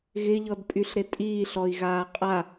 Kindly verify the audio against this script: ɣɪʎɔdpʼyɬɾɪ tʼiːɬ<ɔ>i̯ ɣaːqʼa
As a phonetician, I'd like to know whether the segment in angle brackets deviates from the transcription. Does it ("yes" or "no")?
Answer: no